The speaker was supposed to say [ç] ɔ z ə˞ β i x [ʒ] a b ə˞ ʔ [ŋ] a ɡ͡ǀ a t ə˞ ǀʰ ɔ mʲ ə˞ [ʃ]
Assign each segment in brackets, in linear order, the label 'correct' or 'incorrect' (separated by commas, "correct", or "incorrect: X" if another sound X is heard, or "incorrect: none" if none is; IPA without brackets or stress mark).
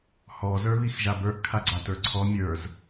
incorrect: h, correct, incorrect: kʰ, incorrect: z